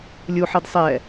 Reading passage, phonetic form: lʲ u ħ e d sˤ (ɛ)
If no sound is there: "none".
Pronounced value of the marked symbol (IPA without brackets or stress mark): ɛ